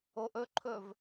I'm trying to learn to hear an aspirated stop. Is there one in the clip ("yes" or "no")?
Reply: yes